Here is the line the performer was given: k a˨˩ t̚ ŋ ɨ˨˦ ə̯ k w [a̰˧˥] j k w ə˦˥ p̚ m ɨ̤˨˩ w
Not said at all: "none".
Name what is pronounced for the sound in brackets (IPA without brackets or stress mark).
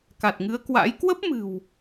a̰˧˥